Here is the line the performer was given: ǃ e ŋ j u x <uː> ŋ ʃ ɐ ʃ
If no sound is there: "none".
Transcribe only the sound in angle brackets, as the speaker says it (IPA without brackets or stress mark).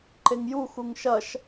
u